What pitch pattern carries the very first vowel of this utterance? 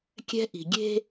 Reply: high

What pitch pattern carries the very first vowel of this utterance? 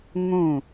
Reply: falling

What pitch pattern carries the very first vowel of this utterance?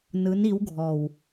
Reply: rising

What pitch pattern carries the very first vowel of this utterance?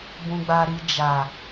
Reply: low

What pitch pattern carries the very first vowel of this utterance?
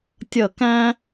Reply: falling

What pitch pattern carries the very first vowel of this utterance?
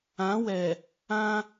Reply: rising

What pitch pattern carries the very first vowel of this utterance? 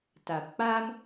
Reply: low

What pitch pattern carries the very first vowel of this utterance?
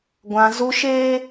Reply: high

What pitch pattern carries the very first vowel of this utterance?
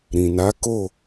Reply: low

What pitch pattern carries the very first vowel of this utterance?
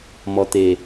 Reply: low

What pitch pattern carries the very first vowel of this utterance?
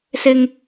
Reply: high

